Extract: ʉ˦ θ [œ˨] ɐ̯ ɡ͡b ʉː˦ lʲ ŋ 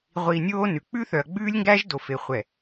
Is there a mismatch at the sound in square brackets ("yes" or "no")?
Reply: no